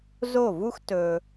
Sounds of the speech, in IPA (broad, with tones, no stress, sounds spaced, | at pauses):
z o˦˨ v u˦ x t ɵ˧